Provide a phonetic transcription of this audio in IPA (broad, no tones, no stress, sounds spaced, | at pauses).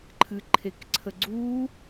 ǃʰ ɨ ǃʰ e k ǀʰ ə ɡ͡ǀ u